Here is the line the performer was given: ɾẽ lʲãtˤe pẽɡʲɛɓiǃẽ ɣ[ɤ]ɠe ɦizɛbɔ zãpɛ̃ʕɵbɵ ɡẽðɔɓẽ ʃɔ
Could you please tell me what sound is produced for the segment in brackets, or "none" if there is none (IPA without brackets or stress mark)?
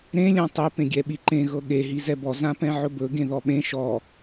ɤ